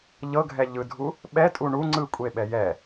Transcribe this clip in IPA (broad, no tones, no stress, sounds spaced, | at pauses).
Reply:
ʎ ɤ ɡʱ ɛ ʎ ɯ dʱ u | ɓ ɛ tʼ u ɳ u ŋ͡ǀ ɯ kʷʼ e ɓ ɛ j ɛ